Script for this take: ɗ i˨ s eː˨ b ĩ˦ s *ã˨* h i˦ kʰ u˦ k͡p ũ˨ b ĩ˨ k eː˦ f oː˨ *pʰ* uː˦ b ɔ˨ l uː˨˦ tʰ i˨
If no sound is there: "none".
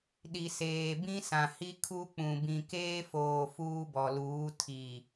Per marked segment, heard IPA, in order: ã˨, f

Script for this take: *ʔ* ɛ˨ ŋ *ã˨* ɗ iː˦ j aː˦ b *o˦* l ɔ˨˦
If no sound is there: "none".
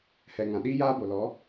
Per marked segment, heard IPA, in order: h, ã˨, o˨

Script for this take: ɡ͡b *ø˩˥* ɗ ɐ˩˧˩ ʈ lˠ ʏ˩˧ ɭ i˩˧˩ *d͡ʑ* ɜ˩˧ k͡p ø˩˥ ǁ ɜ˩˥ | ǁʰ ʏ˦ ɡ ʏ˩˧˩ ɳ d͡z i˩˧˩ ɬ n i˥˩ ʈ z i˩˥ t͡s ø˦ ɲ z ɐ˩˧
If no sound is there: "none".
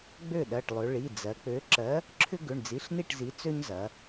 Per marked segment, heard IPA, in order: ø˥˩, d͡z

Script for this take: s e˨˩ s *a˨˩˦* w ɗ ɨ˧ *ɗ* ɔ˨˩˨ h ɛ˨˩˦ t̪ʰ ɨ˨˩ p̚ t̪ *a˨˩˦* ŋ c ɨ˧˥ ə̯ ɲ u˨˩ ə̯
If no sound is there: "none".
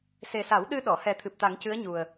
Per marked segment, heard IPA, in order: a˨˩˦, ɗ, a˨˩˦

